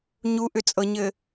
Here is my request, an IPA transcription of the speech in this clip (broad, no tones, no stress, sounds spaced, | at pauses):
ɲ u ʔ ʏ t͡sʼ ɤ ɲ ɘ